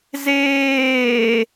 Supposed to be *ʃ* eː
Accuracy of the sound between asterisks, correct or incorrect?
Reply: incorrect